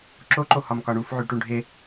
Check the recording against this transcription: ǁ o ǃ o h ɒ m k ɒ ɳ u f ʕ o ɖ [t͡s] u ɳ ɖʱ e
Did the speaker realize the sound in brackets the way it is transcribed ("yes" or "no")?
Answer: no